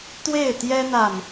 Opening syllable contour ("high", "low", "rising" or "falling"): falling